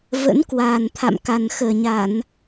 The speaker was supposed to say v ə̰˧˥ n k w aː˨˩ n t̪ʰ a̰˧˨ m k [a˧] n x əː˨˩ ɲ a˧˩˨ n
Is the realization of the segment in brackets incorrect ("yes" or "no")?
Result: yes